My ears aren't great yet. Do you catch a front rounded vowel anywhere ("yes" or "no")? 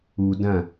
no